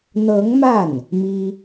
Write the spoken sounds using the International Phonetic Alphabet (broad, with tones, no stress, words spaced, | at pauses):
n̪ɤ˧˥ŋma˥˩n | mi˥